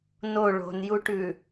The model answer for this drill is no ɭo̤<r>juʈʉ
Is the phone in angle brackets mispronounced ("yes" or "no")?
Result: yes